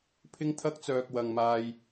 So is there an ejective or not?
no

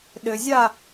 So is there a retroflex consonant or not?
no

